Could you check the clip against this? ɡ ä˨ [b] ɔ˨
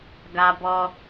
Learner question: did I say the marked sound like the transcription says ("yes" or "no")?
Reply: yes